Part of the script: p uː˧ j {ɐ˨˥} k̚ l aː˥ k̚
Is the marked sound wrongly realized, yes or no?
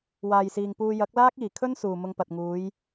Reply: no